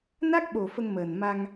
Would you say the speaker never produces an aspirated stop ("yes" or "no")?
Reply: yes